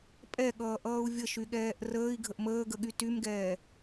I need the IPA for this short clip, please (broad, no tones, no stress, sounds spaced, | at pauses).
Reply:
pʼ ɛ ɠ ʌː ʔ ʌː u̯ vʲ ə ʃ y ɠ ɛː ʔ r əː i̯ ɡʱ ə ʔ m əː ɡ ə ɠ y t y m ɡ ɛː